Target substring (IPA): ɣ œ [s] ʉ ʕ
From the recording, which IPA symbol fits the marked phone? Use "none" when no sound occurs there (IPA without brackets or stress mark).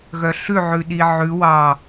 ɬ